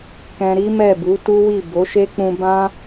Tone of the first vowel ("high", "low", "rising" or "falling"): high